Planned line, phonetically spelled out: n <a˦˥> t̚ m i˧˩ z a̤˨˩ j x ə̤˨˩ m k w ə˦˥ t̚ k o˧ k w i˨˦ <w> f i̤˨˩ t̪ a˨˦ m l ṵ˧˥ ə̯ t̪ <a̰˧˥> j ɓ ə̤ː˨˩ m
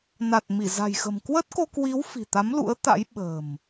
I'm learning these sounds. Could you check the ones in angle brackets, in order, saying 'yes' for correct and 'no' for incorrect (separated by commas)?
no, yes, yes